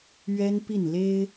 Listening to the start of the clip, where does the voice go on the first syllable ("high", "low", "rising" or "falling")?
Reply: high